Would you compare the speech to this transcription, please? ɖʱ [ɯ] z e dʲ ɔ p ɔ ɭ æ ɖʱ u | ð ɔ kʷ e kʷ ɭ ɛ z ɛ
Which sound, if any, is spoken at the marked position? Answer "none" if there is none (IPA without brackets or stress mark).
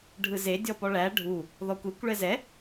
ɯ